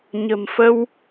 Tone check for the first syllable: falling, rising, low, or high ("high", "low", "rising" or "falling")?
low